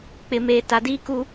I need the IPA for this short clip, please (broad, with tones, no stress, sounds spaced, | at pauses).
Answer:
k͡p ɪ˨ m eː˨ t a˨ d iː˦ k u˦